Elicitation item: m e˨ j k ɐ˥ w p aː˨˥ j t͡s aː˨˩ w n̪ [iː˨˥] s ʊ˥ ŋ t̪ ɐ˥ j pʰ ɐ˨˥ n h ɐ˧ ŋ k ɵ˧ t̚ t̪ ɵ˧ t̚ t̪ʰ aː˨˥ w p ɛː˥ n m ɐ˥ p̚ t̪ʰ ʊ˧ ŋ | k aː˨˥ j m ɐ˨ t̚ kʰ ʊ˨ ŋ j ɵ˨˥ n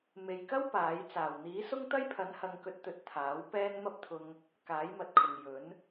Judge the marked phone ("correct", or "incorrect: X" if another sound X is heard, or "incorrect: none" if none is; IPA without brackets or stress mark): correct